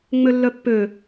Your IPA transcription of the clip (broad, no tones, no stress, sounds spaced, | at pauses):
ŋ͡m ø lː œ pː ø